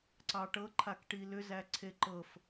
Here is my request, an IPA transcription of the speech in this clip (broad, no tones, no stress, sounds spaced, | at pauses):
ǀ ɑ ʈ ɤ ǃʰ a k ʈ i l ʏ z æ ǀʰ e ǃ ɤ f